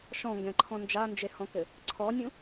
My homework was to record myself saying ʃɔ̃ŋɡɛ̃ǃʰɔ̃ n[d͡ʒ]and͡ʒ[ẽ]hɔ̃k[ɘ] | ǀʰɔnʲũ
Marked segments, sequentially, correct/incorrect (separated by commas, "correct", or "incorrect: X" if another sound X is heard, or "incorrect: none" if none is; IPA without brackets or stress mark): correct, incorrect: e, correct